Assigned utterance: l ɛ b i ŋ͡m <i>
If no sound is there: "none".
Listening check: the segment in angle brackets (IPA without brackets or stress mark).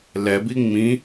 ĩ